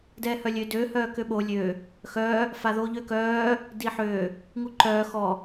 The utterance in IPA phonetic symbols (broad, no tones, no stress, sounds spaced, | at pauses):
d ɛː h œ lʲ ø d ø h œː k ø ɓ o lʲ ø | x œː | f a ð oː ʎ ø k œː | d i ħ ø | ŋ u ǃ œː x ɔ